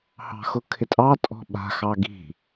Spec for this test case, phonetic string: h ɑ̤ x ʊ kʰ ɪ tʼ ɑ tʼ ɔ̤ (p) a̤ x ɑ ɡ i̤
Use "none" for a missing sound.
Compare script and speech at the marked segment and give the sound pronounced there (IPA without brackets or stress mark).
ɓ